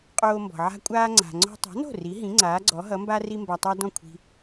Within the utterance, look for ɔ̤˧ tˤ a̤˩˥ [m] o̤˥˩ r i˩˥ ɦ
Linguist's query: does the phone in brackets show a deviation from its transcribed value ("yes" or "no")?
yes